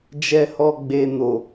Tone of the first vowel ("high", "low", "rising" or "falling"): low